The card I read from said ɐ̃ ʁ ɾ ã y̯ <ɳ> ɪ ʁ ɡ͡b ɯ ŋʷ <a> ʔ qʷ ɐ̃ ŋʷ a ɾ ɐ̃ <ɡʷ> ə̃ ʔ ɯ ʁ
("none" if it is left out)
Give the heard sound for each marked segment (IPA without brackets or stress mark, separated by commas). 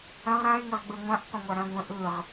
ŋ, ã, ɡʷ